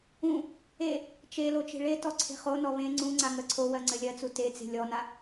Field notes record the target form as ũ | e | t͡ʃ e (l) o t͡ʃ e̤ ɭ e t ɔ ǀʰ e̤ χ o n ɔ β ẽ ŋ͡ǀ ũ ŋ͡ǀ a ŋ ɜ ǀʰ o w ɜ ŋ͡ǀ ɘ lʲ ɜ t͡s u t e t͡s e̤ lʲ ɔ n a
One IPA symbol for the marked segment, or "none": l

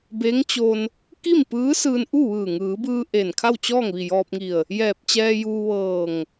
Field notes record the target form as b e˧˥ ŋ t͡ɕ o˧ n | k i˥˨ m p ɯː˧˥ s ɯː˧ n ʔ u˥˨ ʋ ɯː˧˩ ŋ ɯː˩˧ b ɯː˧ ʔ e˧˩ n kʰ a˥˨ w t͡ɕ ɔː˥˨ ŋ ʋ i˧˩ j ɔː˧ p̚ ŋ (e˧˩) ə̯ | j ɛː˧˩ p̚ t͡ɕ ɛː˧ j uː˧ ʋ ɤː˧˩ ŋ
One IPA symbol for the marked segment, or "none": i˧˩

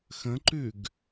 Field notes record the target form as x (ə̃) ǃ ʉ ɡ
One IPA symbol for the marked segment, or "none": ə̃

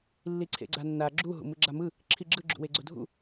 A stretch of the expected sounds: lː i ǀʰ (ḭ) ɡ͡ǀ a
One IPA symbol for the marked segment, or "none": ḛ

